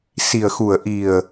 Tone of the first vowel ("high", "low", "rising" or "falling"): low